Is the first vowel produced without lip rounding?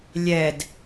yes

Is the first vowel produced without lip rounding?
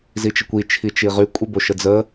yes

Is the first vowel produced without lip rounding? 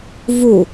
no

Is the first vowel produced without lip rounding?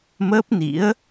yes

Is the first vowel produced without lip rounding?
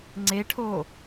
yes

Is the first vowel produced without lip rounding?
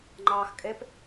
yes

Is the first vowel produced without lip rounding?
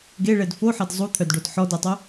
yes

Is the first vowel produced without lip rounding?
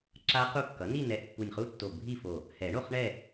yes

